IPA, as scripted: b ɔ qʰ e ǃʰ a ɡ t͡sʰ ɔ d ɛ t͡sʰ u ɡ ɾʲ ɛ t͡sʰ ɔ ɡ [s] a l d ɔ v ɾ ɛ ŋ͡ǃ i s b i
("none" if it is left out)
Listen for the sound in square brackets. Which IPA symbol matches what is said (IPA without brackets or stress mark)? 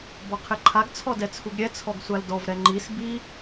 sʷ